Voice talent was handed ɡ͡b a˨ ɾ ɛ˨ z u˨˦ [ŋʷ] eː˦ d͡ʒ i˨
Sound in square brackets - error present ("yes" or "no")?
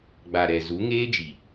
yes